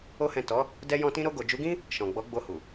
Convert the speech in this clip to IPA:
o˦ h ɛ̃˦˨ t ɔ˨˦ | d ɛ˧ j ɔ̃˧ t ĩ˧ ɾ o˧ ɡ o˨ d͡ʒ u˨˦ ɡ ĩ˦ | ʃ ɔ̃˨ ɡ͡b ɔ˨˦ ɡ͡b o˧ h u˨

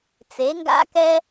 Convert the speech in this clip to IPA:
t͡s e˨˦ ŋ ɡ a̰˦ k ɛ˦

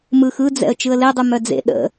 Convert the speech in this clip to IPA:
m ɯ x ɯ d͡z ɛ̰ ə̯ t͡ʃ ɯ ə̯ l e dˤ ʉ m œ d͡z ḛ ɗ ə̰

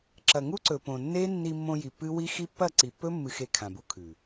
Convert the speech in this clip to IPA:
ǁ ɐ˨ ŋ u˦ ǀ ɵ˨ p õ˨ nː e˦ nː i˧ mː õ˧ j i˨ pː ɨ˦ w i˦ x i˦ pː ɐ˦˨ ǀ i˨ pː ɵ˦ mː ɨ˧ x e˧ kʰ ã˨ b u˧ kʰ ʉ˨

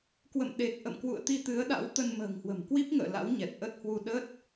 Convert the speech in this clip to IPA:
k w ə̰˧˨ m ɗ e˨˩ k̚ ʔ ə̰˧˨ m k w ṵ˧˨ ə̯ t̪ i˧ t̪ ɨ˨˦ ə̯ ɗ a̰˧˥ w t̪ ə˧ n m ə̤ː˨˩ ŋ h w ə̤˨˩ m k w i˦˥ p̚ ŋ ə̰ː˧˨ l a̰˧˥ w ɲ ɛ˨˩ t̚ ʔ ə˦˥ t̚ h w u˧ ɗ ə˦˥ t̚

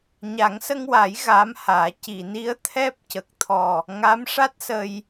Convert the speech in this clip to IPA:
ɲ a˨˩˦ ŋ s ə˧ ŋ w a˨˩˦ j ɣ aː˧˥ m h aː˨˩˦ c i˨˩˨ n i˧˥ ə̯ t̪ʰ ɛ˦˥ p̚ c ə˨˩ k̚ t̪ʰ ɔ˨˩ | ŋ a˧˥ m ʂ a˦˥ t̚ s ə˧ j

